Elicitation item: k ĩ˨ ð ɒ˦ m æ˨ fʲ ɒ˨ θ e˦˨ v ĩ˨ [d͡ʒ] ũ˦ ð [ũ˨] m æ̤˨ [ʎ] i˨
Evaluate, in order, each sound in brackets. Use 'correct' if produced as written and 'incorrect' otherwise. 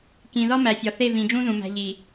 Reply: correct, correct, correct

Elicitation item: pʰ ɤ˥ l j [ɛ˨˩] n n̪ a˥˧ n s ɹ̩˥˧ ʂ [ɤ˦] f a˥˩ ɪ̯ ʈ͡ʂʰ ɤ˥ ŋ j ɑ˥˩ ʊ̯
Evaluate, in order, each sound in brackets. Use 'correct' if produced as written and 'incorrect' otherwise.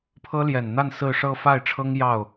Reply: correct, incorrect: ɤ˥˧

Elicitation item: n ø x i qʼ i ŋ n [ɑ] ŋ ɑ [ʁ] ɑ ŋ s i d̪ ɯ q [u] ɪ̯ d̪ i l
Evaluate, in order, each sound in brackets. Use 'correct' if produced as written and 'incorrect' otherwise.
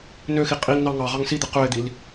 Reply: correct, correct, incorrect: ø

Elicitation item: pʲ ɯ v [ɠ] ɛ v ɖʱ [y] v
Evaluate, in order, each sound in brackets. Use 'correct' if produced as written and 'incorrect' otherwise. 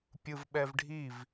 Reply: incorrect: ɓ, incorrect: i

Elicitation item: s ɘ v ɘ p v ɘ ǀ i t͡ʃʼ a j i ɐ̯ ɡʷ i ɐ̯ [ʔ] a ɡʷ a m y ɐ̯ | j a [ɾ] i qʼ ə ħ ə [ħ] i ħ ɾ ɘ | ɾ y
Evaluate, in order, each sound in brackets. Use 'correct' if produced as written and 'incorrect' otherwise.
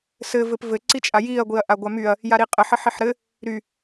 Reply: correct, correct, correct

